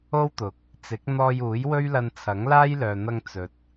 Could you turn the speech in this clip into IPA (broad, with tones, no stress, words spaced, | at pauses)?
o˥wt̪ʊ˨k̚ | t͡sɪ˨˥k̚n̪ɔː˧juː˨˥j wɵ˥ɥlɐ˧nt͡sʰɐ˨˥ŋlaː˥j lœː˨n̪ɐ˧ŋ t͡sɵ˨t̚